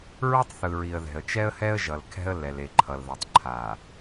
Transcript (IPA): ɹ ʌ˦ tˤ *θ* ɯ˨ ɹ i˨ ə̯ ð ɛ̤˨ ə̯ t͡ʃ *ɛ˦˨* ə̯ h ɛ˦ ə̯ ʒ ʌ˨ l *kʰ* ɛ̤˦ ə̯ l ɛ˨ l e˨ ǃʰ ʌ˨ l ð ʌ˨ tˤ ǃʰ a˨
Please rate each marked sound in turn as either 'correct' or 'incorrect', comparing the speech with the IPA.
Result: correct, incorrect: ɛ˦, correct

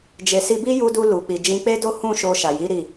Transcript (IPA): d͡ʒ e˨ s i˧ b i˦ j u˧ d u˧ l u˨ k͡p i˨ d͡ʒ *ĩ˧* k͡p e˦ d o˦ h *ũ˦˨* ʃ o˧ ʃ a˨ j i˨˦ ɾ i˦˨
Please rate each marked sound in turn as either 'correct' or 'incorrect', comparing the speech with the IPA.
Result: correct, correct

